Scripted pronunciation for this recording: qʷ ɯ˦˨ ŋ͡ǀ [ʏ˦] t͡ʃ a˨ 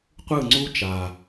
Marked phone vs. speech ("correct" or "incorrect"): incorrect